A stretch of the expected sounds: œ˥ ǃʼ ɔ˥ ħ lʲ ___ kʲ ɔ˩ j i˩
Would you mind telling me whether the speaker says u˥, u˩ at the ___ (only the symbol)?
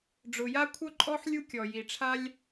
u˥